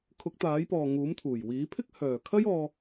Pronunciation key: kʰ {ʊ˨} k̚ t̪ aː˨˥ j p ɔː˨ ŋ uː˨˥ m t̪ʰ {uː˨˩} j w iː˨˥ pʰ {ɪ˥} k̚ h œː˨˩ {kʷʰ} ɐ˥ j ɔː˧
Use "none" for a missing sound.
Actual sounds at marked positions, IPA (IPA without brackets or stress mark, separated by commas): ʊ˨˥, uː˨˩, ɪ˥, kʰ